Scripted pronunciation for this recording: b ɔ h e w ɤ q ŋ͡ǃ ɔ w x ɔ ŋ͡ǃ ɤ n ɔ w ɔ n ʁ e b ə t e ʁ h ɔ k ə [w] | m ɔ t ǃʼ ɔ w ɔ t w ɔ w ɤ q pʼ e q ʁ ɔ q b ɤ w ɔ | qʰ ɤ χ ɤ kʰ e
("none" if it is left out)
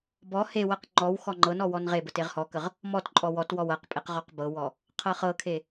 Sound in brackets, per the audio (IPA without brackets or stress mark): ʁ